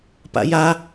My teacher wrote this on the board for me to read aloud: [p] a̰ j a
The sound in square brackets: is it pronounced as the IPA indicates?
yes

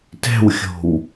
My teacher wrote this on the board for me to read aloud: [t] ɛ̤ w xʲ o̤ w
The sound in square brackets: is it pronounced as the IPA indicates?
yes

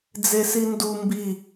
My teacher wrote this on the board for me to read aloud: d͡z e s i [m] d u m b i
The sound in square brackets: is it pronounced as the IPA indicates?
no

